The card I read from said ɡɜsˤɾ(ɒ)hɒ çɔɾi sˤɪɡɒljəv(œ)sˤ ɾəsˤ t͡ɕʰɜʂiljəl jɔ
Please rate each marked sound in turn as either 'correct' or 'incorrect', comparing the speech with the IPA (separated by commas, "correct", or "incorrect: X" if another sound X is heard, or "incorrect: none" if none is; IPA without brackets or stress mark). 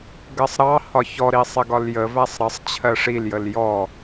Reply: incorrect: ɑ, incorrect: æ